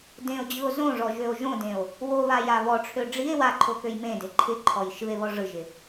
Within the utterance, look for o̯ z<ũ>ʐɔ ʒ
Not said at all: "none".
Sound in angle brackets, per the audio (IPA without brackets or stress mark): õ